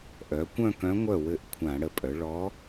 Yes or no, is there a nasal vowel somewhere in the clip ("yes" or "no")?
yes